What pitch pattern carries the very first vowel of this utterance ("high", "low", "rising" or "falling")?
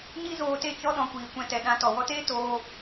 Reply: high